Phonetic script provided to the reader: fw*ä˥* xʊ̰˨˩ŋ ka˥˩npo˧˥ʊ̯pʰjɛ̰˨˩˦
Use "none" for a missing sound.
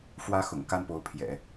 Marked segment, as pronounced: ä˥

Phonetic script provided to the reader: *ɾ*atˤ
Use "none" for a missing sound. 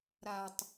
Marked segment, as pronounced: ɾ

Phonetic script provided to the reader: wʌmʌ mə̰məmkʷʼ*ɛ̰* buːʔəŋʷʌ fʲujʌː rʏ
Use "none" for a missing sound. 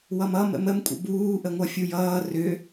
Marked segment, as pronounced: ə̰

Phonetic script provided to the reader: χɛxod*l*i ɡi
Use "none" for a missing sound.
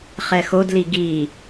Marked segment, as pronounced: l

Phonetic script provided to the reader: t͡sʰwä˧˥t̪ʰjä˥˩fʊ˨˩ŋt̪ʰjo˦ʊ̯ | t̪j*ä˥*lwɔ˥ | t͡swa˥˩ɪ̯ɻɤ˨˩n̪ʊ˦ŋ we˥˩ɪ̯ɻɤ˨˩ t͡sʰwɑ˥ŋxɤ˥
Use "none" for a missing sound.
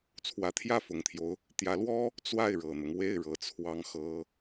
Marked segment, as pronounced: ä˧˥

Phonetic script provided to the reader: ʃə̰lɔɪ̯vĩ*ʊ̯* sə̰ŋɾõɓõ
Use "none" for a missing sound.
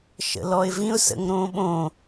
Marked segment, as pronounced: ʊ̯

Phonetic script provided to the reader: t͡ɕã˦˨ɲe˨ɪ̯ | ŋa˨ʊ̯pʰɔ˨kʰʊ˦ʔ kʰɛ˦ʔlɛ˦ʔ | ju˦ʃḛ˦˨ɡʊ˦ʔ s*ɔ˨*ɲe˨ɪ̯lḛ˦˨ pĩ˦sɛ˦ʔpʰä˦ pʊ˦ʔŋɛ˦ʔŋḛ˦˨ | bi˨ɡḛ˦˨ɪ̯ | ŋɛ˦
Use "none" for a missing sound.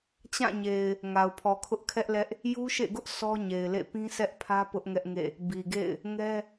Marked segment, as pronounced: ɔ˦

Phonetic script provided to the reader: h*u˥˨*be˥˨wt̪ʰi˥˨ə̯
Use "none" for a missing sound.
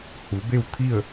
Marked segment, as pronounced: u˩˧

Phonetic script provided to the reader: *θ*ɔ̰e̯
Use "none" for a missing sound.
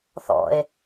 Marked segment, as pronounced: θ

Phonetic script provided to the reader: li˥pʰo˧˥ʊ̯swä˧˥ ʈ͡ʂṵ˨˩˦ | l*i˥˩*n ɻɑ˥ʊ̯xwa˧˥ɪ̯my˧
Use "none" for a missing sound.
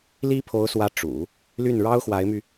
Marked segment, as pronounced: y˥˩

